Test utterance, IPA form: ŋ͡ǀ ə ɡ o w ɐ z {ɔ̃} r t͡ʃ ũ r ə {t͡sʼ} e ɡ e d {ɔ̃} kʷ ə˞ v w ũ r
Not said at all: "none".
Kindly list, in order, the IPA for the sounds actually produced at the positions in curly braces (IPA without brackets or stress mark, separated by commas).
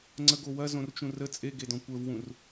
õ, t͡sʼ, ɔ̃